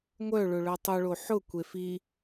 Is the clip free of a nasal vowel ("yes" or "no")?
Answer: yes